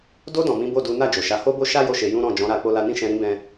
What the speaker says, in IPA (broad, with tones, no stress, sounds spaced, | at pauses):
d o˧ d ɔ̃˨ m ĩ˨˦ b o˦˨ d u˨˦ n a˦˨ d͡ʒ o˨ ʃ a˨˦ h o˦ b o˦ ʃ a˦ j o˦˨ ʃ e˧ j ũ˦ ɾ ɔ̃˦˨ d͡ʒ ɔ̃˨˦ ɾ a˧ k͡p o˦ l a˦ n ĩ˦ ʃ ɛ̃˧ ɾ ĩ˦ b ɛ̃˦